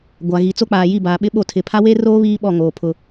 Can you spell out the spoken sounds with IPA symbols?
ɡʷ a˨ ɣ i˨ t͡s o˦ k͡p aː˨ j i˦˨ b aː˨ ɓ ɪ˦ ɓ o˦˨ tʰ ɪ˨ pʰ a˦ w eː˦ r oː˦ β iː˦ ɓ ɔ˦˨ ŋ oː˨ pʰ ʊ˦

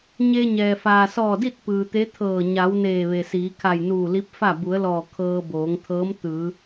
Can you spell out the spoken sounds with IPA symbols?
ɲ e˧ ɲ ɛː˩ f aː˩ s ɔː˧˩ d i˥˨ t̚ p ɯː˩ t̪ e˧˥ t̪ʰ ɤː˧˩ ɲ a˩˧ w n eː˧˩ ʋ e˩ s iː˩˧ kʰ a˧˩ j n uː˧˩ l i˧˥ p̚ f a˥˨ b u˩˧ ə̯ l ɔː˧˩ kʰ ɤː˧ b oː˩˧ ŋ t̪ʰ ɤː˧˥ m t̪ ɯː˩˧

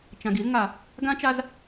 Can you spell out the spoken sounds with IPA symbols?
t͡ʃ ã˨ ɡ i˦ z ŋ a˨ | ɡ ã˦ t͡ʃ a˦ z

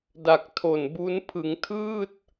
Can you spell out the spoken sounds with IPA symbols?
d a˨˩ k̚ tʰ o˨˩ n b u˦˥ n pʰ ɯ˩˦ ŋ tʰ ɯː˥˩ t̚

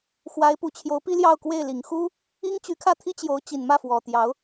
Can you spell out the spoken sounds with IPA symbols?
x w a˧˥ ɪ̯ p u˨˩ t͡ɕʰ j o˧˥ ʊ̯ p i˥ l j ɑ˥˧ ʊ̯ k w e˥˩ ɪ̯ l i˨˩ ŋ x u˥ | i˥ ŋ t͡ɕ y˧˥ kʰ ä˥˩ t̪ʰ i˥ t͡ɕ j o˧˥ ʊ̯ t͡ɕ i˨˩ n m ä˥˩ f w ɔ˨˩ t̪ j ɑ˧˥ ʊ̯

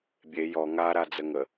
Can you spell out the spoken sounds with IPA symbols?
bʲ e j ɔ ŋ a ɾ a d͡z ə ŋ ə

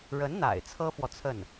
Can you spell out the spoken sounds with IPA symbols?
ɻ ə˧˥ n n̪ a̰˨˩ ɪ̯ t͡sʰ ɤ˥ f w ɔ˨ t͡sʰ ə˥˩ n

